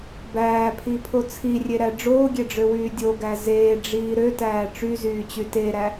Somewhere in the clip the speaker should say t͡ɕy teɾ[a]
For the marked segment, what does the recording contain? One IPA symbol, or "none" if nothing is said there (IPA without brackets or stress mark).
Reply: æ